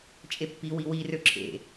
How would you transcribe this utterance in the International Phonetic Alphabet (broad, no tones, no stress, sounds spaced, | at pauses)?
t͡ʃʼ e pː i w i w i r ø ǁʰ ḛ